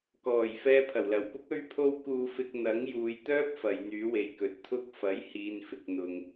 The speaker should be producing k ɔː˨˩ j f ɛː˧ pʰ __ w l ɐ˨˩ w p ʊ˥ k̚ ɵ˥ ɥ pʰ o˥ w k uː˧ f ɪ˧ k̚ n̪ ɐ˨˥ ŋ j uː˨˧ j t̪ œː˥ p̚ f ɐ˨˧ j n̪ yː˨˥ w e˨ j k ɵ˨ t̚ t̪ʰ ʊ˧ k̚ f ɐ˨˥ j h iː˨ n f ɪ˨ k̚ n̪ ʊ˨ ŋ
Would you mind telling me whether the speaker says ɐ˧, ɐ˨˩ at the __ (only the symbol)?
ɐ˨˩